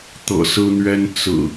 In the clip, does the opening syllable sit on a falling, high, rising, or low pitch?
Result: low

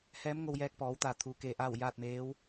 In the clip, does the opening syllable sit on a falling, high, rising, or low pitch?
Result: rising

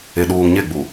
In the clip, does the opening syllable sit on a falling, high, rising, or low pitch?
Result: low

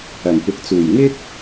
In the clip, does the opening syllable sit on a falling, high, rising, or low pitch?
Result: low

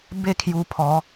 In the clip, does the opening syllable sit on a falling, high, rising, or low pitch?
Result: falling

